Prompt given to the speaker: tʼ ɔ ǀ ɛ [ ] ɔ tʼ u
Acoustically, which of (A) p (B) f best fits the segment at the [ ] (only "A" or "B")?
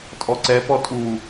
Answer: A